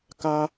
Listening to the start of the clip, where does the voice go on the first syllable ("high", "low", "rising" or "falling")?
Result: high